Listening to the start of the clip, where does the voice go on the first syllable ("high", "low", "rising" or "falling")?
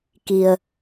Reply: low